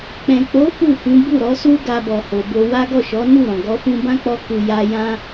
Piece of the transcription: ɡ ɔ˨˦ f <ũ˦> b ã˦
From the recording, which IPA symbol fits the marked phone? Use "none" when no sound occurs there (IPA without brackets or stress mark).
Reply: ũ˧